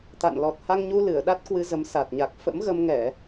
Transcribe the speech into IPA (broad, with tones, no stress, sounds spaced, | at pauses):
t̪ a̰˧˨ n l ɔ˨˩ t̚ h a˧ ŋ ɲ u˧ l ɨ˧˩ ə̯ ɗ a˦˥ t̚ k w ɨ˧ z ə˨˦ m s a˨˩ t̚ ɲ a˨˩ k̚ f ə̰˧˥ m ɣ ə˧ m ŋ ɛ˧˩˨